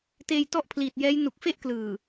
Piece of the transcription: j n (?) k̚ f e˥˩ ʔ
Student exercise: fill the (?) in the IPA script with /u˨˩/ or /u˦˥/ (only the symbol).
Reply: u˨˩